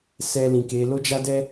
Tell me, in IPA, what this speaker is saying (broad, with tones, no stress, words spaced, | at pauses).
sɛ˨ lĩ˨ke˨˦ lo˦d͡ʒa˦dɛ˦